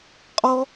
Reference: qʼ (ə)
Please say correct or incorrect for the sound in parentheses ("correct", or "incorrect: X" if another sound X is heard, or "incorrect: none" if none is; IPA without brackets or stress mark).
incorrect: ɔ